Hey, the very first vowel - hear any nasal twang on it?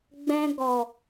yes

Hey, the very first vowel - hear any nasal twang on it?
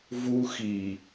no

